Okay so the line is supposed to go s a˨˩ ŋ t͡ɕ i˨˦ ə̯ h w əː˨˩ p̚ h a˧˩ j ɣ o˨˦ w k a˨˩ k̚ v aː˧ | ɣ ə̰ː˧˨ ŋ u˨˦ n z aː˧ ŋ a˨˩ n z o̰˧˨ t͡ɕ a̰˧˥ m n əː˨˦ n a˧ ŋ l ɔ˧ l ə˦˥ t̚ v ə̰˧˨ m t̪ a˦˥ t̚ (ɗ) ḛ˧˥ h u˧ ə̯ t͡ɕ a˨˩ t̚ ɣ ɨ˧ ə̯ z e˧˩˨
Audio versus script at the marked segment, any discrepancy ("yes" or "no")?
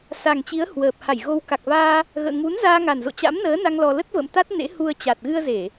yes